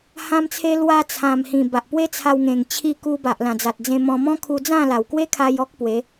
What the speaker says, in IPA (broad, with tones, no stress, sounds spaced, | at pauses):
h ã˦ m t͡sʰ e˦ l w a˧ t͡sʰ ã˨˩ m h ĩ˨˩ b a˨ ʔ p w e˦ t͡sʰ a˧ w ŋ ẽ˨˩ ŋ t͡ɕʰ i˧ k u˧ b a˨ ʔ l ã˨˩ d͡z a˨ t̚ d͡z ẽ˧ m ɔ̃˧ m ɔ̃˦ kʰ u˧ d͡z ã˥˧ l a˨˩ w k w e˦ kʰ a˧ j ɔ˦ k̚ p w e˨˦